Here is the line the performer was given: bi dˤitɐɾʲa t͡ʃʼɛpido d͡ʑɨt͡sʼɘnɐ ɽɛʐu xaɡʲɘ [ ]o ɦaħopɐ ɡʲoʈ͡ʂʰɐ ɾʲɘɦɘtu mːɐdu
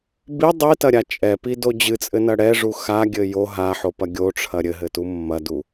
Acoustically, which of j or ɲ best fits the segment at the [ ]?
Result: j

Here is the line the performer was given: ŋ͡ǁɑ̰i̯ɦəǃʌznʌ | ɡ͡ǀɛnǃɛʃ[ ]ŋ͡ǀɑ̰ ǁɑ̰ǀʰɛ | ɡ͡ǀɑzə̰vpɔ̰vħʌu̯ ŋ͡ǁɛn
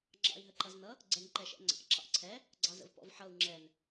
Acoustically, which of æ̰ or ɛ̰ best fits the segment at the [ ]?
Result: ɛ̰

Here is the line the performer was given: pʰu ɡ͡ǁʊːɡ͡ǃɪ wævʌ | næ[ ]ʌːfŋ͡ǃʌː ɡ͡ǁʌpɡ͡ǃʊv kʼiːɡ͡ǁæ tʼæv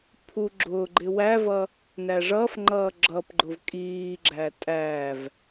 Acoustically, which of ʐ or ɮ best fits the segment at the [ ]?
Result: ʐ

